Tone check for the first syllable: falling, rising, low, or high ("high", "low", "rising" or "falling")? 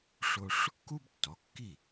high